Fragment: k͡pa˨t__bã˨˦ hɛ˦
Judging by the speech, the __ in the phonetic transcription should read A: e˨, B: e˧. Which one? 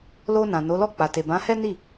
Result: A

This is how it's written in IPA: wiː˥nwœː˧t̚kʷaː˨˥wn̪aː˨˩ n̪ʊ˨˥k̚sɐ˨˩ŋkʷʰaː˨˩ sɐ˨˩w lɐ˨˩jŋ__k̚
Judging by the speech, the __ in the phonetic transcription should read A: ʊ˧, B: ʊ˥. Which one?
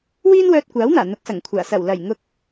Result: A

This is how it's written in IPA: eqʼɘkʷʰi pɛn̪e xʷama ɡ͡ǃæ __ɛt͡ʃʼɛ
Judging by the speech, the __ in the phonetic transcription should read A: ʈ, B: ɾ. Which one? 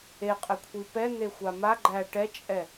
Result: A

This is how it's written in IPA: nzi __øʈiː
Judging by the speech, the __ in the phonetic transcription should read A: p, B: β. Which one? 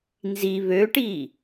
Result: B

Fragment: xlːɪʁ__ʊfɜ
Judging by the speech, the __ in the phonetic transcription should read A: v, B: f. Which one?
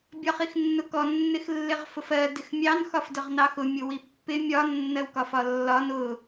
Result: B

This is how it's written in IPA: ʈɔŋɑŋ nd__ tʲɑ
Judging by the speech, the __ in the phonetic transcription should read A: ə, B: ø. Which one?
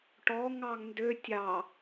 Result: B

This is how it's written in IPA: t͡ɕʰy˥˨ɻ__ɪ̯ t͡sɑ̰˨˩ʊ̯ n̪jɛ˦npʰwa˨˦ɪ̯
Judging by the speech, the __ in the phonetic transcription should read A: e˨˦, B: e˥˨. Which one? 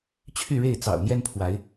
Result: B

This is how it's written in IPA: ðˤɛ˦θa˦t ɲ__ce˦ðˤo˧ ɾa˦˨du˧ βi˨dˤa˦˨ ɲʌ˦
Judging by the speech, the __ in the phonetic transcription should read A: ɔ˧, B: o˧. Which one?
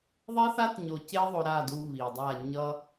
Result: B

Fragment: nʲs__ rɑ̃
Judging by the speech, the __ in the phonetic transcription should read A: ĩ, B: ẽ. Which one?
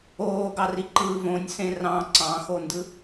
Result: B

